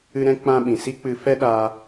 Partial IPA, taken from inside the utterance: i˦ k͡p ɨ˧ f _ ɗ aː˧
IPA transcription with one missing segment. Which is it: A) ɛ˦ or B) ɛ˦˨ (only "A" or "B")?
A